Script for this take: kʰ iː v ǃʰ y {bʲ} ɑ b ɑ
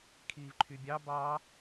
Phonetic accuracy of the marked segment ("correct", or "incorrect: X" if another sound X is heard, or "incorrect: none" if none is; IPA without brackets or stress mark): correct